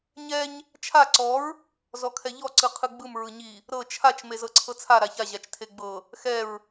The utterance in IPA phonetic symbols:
ɲɛɲ | t͡ʃʰa ǀɔɹ | zɔkʰɛʎɔ ǀɯqʰɯɡ͡bɯm ɹɯɲi | ɾɤ t͡ʃʰat͡ʃ mezɤǀʰɤt͡sʰa ɾaça ʑat͡ʃtʰeɡ͡bɤ | xɛɹ

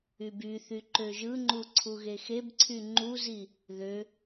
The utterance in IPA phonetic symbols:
ybyθy ǃøʒɯŋ͡ǃu ǀʰuɣexebǀʰy ŋ͡ǃuzi | ðø

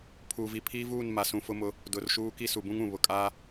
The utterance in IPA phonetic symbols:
pʰuː˨vi˨pʰiː˦vuː˦˨n ma˨sũ˨fʊ˦mʊ˦ | dʊ˨rʃuː˦ ki˦su˨bũ˦ŋũ˨ βʊ˨kʼaː˦

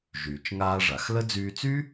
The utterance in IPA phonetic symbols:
ʒyː˩t͡ʃŋaː˧ ʐa˩xlə˥ d͡zyː˧t͡sy˥

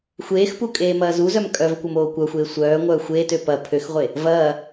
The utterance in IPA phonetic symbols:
xʷeːxpu kʼeːmɐːzuzœm kʼœvkʷɐm oːkʷœxʷeː sʷœː ŋʷœːxʷeːtø pɐ pʰøxʁʷe | vɐː

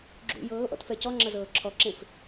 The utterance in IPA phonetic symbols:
ɡ͡ǁṵ jɤːʔɔ̰tfɛ cɔŋ͡ǁɐzɤː ǁʰɔǁẽf

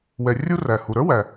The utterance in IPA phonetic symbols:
wɛ˩rʲu˧ ræ˩ hu˩ɾə˞˥wæ˩

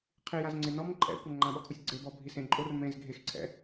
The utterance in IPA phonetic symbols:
qʰijaz ŋ͡ǀenɔm ǃʼɛ̰ kʷaŋ͡ǃãɓɔkʰusʲ ɡ͡ǀebɔ bʱisẽǃʼor mẽz ɡʱexǀʰɛ̰

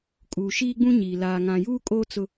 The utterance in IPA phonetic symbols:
kʼu˨ ʃiː˦ɡ͡bũ˦ɲiː˨ laː˨ŋã˨ juː˦kʼoː˦ t͡sʊ˦

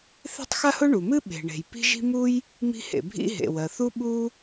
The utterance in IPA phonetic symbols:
θe̤˥tˤxa˥hʊ˥ ɳu˩mɨ˥ ɓe̤˩ɳe̤˩j pi̤˥ʒi̤˥ mu˥j | mi̤˥hḛ˩bʱḭ˥ ɦḛ˩wɜ˩θu˥ ɓu˥

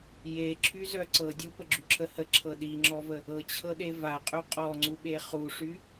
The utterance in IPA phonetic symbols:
je ǁʰyzœ ǀɤ dʲupəɡ͡ǁyǁʰə həǁʰɤ ɗiŋ͡ǁɔvə | ɤt͡ɕʰɤɗe vaqʼy qʼɔŋ͡ǀuɓe χuʂy

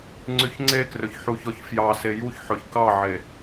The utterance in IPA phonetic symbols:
ŋ͡ǀyçŋ͡ǀekrɵç ħuçɔçfjɑ sejuçħɵç kɑʕe

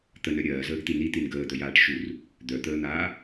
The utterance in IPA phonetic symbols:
t̪ənœ ɾʲɜːzəːɡt̪i nit̪in ɡəːd̪œjaːʈ ʃur | d̪œt̪əːn̪aː

